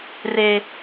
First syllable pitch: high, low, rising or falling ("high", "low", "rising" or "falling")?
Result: low